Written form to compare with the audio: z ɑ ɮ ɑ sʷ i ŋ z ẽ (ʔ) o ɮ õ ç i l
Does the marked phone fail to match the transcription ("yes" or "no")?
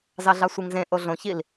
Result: no